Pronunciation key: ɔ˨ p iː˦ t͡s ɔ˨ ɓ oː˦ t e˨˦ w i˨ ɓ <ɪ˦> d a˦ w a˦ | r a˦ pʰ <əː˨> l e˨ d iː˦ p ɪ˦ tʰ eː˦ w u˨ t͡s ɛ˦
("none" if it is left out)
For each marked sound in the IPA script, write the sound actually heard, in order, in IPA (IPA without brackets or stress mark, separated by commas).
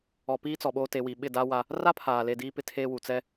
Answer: ɪ˦˨, aː˨